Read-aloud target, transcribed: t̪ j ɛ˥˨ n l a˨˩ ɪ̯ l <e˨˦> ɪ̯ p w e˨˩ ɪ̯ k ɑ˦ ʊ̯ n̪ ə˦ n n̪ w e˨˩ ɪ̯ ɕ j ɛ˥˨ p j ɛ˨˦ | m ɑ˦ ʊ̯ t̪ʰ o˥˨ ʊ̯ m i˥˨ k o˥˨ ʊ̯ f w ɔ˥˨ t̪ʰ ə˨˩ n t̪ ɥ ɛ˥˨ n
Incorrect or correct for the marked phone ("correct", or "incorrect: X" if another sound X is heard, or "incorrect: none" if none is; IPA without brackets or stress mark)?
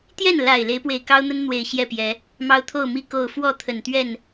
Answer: correct